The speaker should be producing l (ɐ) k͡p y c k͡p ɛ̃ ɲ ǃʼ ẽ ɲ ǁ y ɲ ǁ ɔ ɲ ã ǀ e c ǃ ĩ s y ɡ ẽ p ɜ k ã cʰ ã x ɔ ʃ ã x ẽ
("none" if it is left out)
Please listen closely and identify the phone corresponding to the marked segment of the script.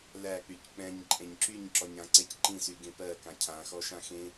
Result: æ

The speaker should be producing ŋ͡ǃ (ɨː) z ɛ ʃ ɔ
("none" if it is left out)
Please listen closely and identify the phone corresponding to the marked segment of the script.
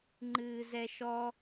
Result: ɨː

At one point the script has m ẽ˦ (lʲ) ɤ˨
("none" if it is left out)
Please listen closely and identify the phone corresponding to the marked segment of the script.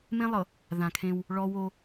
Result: lˠ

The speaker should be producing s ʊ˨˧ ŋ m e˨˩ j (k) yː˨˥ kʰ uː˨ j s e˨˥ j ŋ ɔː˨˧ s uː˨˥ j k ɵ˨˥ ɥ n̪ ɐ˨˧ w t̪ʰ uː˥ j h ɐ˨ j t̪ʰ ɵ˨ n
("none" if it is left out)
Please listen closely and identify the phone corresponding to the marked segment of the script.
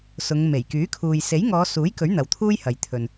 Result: k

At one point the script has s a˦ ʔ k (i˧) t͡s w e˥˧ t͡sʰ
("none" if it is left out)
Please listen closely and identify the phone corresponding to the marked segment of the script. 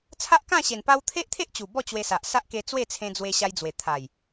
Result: e˧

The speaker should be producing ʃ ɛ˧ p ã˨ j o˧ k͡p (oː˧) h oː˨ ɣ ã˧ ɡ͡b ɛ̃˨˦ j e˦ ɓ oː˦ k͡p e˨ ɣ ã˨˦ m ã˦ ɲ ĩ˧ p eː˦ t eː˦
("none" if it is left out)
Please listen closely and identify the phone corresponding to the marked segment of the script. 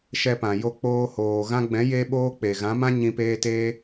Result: oː˧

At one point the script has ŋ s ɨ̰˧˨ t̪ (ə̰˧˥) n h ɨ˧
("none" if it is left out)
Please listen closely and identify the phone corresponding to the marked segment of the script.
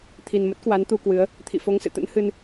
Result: ə̰˧˥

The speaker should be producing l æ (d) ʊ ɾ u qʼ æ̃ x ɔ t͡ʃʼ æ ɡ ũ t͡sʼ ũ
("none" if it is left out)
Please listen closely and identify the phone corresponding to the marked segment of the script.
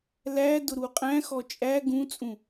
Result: d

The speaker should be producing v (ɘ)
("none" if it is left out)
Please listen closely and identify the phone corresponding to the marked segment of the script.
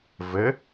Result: ɘ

